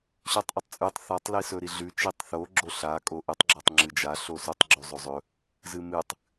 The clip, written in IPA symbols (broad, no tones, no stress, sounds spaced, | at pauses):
ɕ ʉ tˤ ʔ ɵ tˤ t͡sʼ ʉ tˤ θ a tˤ l i s ɵ ɾ i ɮ ʉ t͡ʃ i tˤ θ o ɡ͡ǁ o ɬ a kʼ o ʔ ɨ tˤ ɡ͡ǁ ɐ tˤ ŋ͡ǁ ɨ d͡ʒ a ɬ o s u tˤ ɡ͡ǁ u zˤ o zˤ ɵ | z ɨ m ɨ tˤ